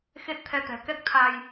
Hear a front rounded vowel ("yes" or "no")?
no